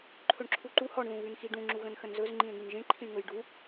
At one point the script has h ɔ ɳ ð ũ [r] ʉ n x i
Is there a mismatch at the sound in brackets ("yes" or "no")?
yes